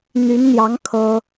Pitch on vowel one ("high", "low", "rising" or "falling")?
rising